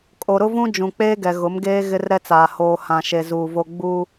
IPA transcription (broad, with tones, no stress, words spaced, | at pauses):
kʼo˨ɾʊ˦vũ˦ d͡ʒũ˨k͡peː˦ɡɛ˨ ɣʊ˨˦mɡeː˦ ɣɪ˦rɾɛ˦t͡saː˨ hoː˨hã˨ʃe˨ zuː˨vo˦ ɡ͡bu˦